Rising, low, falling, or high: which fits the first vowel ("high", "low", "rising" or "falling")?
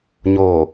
low